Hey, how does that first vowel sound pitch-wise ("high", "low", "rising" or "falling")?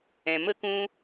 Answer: low